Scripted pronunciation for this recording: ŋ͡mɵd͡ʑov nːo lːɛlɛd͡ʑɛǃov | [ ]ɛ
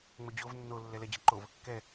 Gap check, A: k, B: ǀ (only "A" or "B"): A